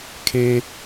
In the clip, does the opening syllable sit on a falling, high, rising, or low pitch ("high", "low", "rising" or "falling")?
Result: high